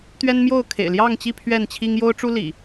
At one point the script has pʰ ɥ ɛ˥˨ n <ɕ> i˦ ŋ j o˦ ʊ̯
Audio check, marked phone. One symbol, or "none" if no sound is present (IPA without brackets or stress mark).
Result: t͡ɕʰ